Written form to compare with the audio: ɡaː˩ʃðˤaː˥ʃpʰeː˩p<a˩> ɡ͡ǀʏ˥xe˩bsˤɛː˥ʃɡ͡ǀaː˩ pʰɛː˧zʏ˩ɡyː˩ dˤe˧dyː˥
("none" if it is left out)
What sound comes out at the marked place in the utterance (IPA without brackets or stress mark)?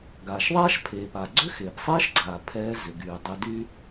a˩